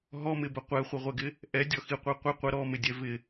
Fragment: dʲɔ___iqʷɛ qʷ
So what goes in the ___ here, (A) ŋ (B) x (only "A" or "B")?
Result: B